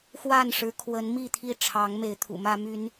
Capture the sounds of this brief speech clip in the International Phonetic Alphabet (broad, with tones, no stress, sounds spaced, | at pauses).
x w a˥˨ n ʂ ɻ̩˨˦ kʰ w ə˨˦ n m i˥˨ t̪ʰ i˥˨ ʈ͡ʂʰ ɑ˨˦ ŋ m e˨˦ ɪ̯ t̪ʰ ṵ˨˩ m ä˦ m y˦ n